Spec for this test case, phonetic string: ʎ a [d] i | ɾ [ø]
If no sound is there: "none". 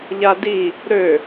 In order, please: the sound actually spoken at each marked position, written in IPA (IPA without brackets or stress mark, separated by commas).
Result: d, ø